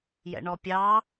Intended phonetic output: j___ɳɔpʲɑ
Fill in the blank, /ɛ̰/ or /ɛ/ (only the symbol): ɛ̰